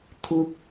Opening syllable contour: high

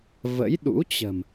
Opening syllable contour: rising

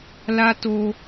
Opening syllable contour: high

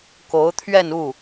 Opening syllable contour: rising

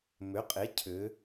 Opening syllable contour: rising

